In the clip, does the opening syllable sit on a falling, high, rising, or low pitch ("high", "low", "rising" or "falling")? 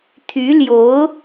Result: rising